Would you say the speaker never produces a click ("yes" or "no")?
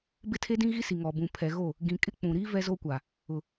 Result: yes